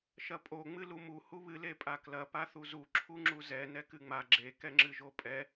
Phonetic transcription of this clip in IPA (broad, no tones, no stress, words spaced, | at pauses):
ʃɐpʼo ŋ͡mɨlumu huβɨ lepʼaklɐ paθuzu ǁʰuŋ͡ǁuzɛ nɛkɨŋ͡ma ɡ͡ǁe kɛŋ͡ǁɨʒopʼɛ